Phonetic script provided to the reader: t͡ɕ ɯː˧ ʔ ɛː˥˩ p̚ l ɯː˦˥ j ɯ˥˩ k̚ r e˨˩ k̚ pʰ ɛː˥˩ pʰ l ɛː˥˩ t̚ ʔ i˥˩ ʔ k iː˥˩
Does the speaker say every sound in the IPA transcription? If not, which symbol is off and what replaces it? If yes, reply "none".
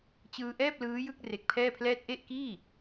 i˥˩ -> e˥˩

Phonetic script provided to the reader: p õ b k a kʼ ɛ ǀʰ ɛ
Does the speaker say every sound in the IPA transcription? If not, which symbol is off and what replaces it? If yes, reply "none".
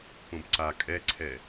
k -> ǀ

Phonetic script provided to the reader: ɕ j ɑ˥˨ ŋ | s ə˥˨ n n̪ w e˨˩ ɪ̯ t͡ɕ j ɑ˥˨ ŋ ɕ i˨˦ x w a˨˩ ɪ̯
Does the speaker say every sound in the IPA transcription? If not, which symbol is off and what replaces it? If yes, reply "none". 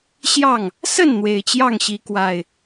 x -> k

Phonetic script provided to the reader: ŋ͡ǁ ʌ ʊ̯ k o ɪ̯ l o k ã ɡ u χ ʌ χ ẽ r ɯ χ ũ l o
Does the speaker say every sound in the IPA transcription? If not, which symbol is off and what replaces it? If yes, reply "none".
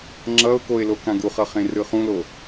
none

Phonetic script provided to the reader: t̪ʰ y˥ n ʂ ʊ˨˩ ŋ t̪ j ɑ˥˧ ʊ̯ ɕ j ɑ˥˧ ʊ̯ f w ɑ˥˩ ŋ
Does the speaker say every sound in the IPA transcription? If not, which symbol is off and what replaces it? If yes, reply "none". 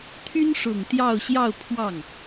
f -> pʰ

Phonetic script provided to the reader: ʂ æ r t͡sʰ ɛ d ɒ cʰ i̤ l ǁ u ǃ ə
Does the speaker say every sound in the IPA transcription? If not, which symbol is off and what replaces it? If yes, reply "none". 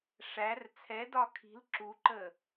cʰ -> kʰ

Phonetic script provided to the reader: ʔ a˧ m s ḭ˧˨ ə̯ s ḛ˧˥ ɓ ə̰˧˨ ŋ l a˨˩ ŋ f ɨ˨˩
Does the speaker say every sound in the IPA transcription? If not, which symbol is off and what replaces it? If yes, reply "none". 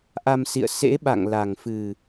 ə̰˧˨ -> a̰˧˨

